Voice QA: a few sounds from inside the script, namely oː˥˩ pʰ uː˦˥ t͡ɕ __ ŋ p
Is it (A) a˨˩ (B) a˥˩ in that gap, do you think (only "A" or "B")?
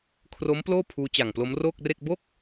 A